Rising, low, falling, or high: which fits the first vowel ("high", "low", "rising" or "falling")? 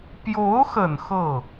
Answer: rising